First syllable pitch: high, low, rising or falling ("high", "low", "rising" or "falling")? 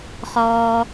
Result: low